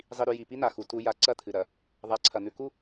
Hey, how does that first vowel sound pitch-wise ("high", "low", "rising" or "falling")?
low